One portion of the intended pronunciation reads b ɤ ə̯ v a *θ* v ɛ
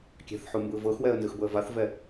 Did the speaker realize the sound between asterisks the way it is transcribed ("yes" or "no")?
yes